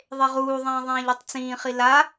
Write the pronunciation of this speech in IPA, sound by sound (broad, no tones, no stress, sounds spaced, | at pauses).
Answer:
ðˤ e ʁ uː ðˤ ẽː ðˤ ẽː ʎ i tˤ t͡s ĩː χ i l a